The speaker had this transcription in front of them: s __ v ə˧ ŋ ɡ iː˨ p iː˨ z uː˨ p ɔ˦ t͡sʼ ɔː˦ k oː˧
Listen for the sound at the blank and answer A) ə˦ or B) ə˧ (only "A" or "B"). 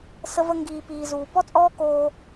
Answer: B